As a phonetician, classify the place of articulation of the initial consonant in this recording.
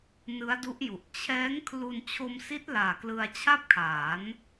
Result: alveolar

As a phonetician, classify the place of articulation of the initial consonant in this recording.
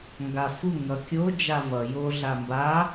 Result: velar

